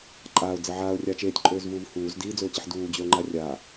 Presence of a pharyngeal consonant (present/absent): present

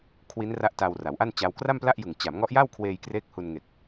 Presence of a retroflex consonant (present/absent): absent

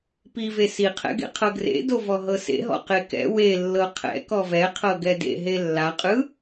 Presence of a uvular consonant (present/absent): present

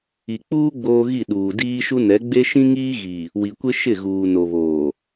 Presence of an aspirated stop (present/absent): absent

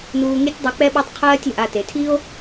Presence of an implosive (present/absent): present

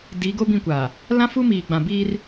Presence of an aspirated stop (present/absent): absent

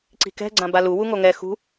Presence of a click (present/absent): present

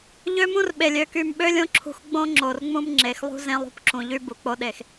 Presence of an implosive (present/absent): present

